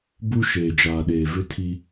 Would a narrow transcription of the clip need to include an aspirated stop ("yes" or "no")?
yes